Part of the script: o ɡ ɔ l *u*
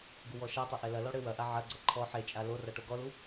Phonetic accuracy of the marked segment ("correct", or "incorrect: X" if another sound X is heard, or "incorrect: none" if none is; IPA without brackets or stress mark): correct